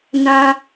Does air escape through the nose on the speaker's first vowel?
yes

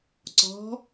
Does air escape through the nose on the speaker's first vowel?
no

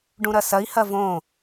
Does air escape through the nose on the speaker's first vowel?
yes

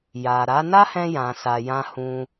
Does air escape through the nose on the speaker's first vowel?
no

